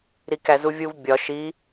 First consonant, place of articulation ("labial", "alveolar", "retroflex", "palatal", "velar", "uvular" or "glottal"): alveolar